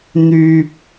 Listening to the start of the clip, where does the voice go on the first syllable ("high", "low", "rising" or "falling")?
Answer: low